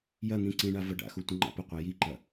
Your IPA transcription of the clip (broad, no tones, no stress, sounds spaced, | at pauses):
j ɐ n̪ ĩ ǀ ĩ ɳ a v ɐ ɖ a̰ x u tʷ ə̃ ŋ͡ǃ a̰ p ə qʷ a j i ǃ ɐ